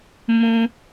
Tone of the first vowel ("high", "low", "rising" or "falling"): high